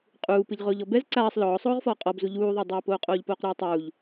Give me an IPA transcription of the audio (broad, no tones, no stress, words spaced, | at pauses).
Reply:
qʼuːpɨʎ ʁoːʎɔbɛz ǀaːsˤ lɔːsˤoːʁfɔː qʼɔbzu ʎuːðˤadˤoːpoː qʼoːʎpoːqɾuːtˤuːʎ